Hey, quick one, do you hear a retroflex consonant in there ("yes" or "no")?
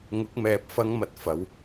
no